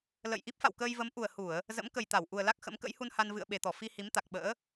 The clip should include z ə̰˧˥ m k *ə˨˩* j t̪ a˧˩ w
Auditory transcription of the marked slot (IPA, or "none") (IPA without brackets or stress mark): ə˨˩